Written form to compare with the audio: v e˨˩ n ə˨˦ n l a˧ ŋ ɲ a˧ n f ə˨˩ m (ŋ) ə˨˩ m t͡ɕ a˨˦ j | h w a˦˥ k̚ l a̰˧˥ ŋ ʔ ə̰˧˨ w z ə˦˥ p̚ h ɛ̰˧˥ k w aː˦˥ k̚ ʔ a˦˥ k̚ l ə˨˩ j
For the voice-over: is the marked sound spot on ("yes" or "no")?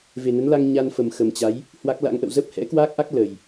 no